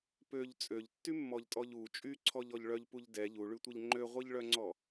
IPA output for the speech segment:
pøʎ t͡sʼøʎtːymːɔʎtʼɔʎ u t͡ʃʼyǀʰɔʎɔʎ ɭœʎpuʎ dɛ ʎuɭytʷɛʎ ŋ͡ǃøʁʷiʎɭœŋ͡ǀɔ

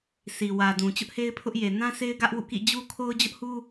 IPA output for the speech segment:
si˨wä˨dũ˨ t͡ɕʊ˦ʔhe˦ɪ̯pʰʊ˦ʔje˨ nã˦se˦ɪ̯ ɡä˦ʔwṵ˦˨kḭ˦˨ d͡ʑu˦kʰo˦ʊ̯ d͡ʑʊ˦ʔhu˦

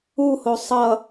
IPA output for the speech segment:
uho sˤʌ

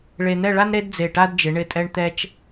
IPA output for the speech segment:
ɭe˧n̪ɛ˥˧ɭa˥nɾe˥d d͡ze˧˩ʈa˥dd͡ʒɪ˩˧ ɳɪ˧˩tʼɛ˧ɳ t̪ɛ˧t͡ʃ

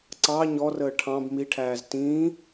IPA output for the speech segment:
ǀɑ ɲɔrəː ʈʰɑ̃b miʈʰæːz tĩː

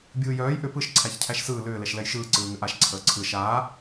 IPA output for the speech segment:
bʲɯːjœːj ʔʏ pɯʃ ǀʰæçcʰæʃsɯː lʏː lɛʃlɛjʃɯː ǀɯːŋʏʔaʃ ǀʰəːǀʰɯ ʃaː

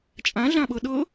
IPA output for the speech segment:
t͡ʃʼãɮãɓɤ ɗɤ

